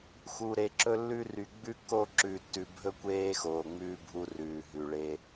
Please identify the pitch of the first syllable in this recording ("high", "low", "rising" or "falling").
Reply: low